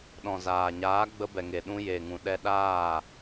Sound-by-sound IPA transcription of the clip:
ɗ ɔ̃˨ z aː˨ ɲ aː˨˦ ɡ͡b ə˧ b ɛ˨ ŋ e˨ ɗ ũ˧ j e˨ ŋ ũ˨ ɗ ɛ˧ ɗ aː˦˨

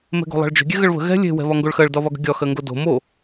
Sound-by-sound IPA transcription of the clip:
m ɛ̤ ɡ o̤ lˠ ɑ̤ ɭ d͡ʒ ə̤ ɡʲ ɛ ɣ ə ɭ β ə̤ ɣ ɛ̤ lʲ e̤ w ɛ̤ β ɒ ŋ ɡ o ɭ x ɜ ɭ d ɒ β ɒ ɡ ə̤ ɡʲ ɒ x ɜ ŋ ɡ o d o̤ m o

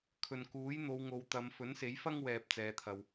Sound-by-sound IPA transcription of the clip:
kʰ ɵ˨ n k uː˨˥ j n̪ o˨˧ w ŋ o˨˧ w t̪ ɐ˨˧ m f ɵ˨˥ n s e˨˥ j f ɐ˥ ŋ w ɛː˨ p̚ t͡s ɛː˨˧ t̪ʰ ɐ˨ w

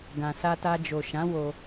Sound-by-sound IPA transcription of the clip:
ɡ ã˨ s a˧ t a˧ d͡ʒ o˨ ʃ ã˨˦ w o˧

